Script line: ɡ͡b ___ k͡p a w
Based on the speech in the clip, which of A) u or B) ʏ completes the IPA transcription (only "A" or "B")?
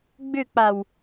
B